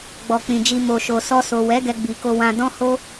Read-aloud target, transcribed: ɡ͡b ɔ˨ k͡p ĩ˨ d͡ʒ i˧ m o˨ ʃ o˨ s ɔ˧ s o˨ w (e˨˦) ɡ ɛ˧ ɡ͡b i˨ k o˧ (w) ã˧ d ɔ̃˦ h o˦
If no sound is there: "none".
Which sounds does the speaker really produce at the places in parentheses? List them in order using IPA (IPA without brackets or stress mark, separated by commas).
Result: ɛ˨˦, w